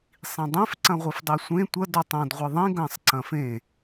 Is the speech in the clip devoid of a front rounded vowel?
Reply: yes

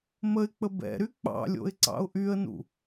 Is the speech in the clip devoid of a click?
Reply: no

